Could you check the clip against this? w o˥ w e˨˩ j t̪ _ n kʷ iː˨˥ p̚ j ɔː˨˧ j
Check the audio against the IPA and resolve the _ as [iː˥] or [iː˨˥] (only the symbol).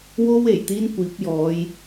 iː˥